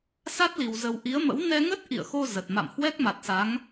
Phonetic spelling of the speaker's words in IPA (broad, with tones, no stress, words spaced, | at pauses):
sa˦˥t̚li˨˩wzə˨˩w ʔi˨˦ə̯mə̰˧˥w nɛ˧ŋə˦˥t̚ ʔḭ˧˨ə̯xo˧ zə˨˩t̚ma̰˧˨m hwɛ˦˥k̚ma˨˩t̚sa˨˦ŋ